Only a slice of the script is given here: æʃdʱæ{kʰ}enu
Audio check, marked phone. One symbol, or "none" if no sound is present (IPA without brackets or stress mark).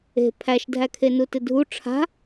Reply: kʰ